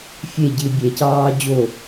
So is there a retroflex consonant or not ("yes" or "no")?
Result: no